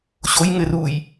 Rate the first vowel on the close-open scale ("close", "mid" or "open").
mid